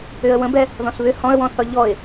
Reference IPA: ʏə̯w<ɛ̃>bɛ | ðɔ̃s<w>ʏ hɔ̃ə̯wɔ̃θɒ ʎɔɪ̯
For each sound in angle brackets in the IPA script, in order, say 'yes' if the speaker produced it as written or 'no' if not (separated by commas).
no, no